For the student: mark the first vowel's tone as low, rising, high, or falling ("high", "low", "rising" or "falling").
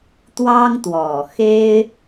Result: high